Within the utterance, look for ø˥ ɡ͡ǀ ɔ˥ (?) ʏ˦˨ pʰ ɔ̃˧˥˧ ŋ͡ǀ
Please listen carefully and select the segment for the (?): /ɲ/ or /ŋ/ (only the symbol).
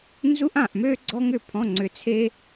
ŋ